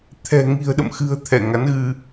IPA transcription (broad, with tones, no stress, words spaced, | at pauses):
t̪ʰɛ̤˨˩ ŋi̤˨˩ə̯ɗə̰˧˨mxɨ̤˨˩ə̯ t̪ʰɛ˧˩ŋa˨˦nɣɨ˧